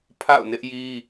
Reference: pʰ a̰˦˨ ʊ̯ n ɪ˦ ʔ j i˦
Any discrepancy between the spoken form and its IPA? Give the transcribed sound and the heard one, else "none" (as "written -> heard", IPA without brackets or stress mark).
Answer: none